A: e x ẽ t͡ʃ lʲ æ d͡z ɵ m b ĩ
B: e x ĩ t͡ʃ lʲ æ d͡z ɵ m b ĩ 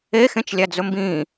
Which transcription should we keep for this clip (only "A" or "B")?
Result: A